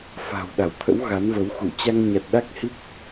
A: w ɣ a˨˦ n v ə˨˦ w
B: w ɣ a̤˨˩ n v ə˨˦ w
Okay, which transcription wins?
A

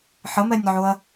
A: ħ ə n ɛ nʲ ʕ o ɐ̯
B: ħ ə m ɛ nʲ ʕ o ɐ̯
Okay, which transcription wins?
B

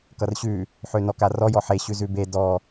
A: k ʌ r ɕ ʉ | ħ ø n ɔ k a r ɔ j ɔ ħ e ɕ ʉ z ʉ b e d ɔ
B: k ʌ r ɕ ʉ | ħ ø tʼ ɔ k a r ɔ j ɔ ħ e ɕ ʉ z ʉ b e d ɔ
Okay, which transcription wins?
A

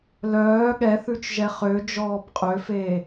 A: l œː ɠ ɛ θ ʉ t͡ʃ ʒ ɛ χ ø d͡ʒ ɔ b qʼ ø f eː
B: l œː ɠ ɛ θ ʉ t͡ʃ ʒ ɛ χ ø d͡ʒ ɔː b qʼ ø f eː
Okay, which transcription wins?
B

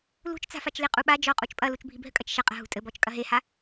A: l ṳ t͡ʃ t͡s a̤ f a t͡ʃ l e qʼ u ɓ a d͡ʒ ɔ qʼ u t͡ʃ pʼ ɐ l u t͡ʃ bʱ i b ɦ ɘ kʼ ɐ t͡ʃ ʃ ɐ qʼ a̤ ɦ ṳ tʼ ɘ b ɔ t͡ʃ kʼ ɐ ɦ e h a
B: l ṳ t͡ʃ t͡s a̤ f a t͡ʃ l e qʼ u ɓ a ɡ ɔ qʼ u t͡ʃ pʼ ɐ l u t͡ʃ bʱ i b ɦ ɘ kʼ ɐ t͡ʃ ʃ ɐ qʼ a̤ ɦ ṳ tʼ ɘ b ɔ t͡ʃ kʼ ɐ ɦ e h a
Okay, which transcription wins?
A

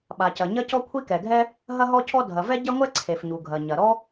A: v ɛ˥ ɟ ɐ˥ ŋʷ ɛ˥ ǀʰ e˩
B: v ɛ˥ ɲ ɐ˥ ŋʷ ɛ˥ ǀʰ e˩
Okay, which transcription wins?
A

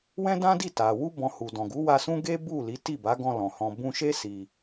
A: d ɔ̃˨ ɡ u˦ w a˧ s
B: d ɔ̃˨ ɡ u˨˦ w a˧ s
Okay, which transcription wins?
B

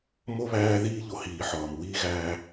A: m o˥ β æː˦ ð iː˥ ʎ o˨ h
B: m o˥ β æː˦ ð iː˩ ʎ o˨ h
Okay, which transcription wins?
A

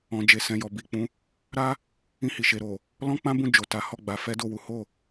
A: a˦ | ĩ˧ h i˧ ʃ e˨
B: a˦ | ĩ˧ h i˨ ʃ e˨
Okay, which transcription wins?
B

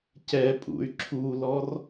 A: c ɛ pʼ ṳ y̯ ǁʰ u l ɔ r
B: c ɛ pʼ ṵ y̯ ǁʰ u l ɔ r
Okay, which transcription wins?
B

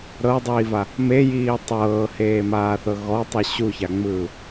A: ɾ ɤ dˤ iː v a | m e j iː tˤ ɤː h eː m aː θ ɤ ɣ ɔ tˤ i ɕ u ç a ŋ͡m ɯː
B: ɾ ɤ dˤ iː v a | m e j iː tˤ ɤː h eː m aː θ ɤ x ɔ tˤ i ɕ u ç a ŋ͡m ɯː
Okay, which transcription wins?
A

